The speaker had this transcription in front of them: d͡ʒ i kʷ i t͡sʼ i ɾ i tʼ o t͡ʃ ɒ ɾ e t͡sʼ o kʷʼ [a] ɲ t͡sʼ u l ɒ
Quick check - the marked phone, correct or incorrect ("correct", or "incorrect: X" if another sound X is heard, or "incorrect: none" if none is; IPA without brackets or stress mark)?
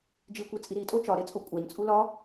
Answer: incorrect: æ